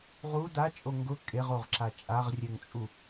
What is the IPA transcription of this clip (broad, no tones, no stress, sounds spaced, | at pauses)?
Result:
ʁ u d a t͡ʃʼ o ŋ ɡ ʊ kʼ e ʁ o ʁ ǁ a t͡ʃʼ a ʁ rʲ ɛ ŋ t͡sʼ u